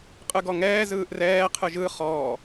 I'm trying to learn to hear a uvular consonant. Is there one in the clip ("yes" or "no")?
yes